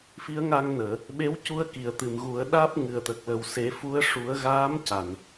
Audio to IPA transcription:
fi˧˥ə̯ŋa˧ŋnəː˨˩˨ | ɓe˧˥wcu˧ə̯ ki˨˩˨ə̯t̪ɨ˨˩˨mɣu˨˩˦ə̯ ɗaː˦˥p̚ŋɨ˨˩ə̯t̪ə˨˩k̚lə˨˩w se˨˩˦fu˧˥ə̯ ʂu˨˩˦ə̯ɣaː˧˥m ca˨˩˨n

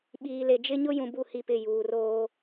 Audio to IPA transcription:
ɓiː˨le˨d͡ʒɪ˦ ɲʊ˦jũ˨ bu˦˨hi˦˨pɪ˦˨ juː˨roː˦

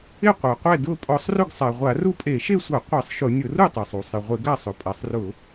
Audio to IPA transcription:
ɪ˥˨qʷa˩qʷɛ˥˨ dʊ˥˨ pʼɔ˧˩˧sˤrʊ˥˨ɡsˤa˩ ʁʷa˧˩˧ru˥˨pʼe˧˩˧ ʃe˥˨sʷa˧˩˧ qʷɛ˧˩˧sˤʃʊ˧˩˧ nʲʊ˧˩˧ru˥˨tˤe˩sˤ u˩sˤɪ˩ʁʷɪ˧˩˧ ɡa˥˨sˤʊ˩ pʼa˩sˤrʊ˧˩˧

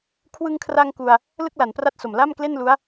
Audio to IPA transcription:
kʰwɯ˧ŋkʰra˧ŋ ku˧a̯ | lɯ˥˩k̚la˩˦npra˥˩t̚so˨˩m la˥˩mkle˥˩nlu˦˥a̯

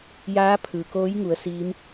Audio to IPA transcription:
jaː˧˥pʰɯː˩koː˧˥j ŋu˩˧ə̯siː˧˥m

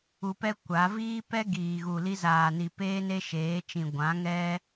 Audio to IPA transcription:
u˧pɛ˦ kʷa˨˦ viː˦ pɛ˦ ɡiː˨ ɣu˨li˧zaː˨ni˨ peː˦ne˦ʃeː˨˦t͡ʃĩ˨ ɡʷã˨˦ŋɛ˦

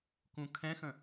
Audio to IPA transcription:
kũkʰɛ̃xə̃

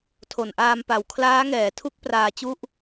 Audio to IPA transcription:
tʰo˨˩nʔaː˧mpa˨˩w kʰlaː˦˥ŋɛː˩˦tʰu˦˥k̚ praː˧t͡ɕu˥˩ʔ

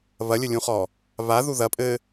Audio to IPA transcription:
βɐlʲɘlʲũχɔ | βaðu ðɐ pʼɘ

